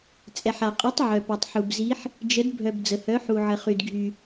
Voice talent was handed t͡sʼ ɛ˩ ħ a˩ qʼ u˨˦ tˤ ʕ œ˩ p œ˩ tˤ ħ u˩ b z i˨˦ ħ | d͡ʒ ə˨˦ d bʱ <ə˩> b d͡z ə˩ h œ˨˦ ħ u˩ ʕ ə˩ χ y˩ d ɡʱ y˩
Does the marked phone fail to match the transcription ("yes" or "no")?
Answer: yes